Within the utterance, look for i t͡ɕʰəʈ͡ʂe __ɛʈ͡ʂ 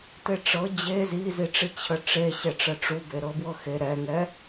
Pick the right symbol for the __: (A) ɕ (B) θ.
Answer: A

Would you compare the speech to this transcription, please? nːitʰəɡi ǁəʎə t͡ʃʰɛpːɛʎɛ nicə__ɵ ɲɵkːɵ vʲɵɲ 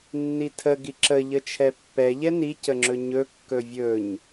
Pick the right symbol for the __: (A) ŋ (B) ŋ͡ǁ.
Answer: B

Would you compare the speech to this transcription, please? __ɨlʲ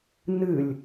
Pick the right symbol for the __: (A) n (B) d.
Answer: A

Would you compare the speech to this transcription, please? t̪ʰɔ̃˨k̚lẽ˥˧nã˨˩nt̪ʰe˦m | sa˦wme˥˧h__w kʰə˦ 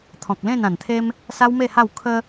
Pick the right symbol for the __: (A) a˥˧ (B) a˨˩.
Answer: A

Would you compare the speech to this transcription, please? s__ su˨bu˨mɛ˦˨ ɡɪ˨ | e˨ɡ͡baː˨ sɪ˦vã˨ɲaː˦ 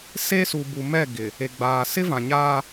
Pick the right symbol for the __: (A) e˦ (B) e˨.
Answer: A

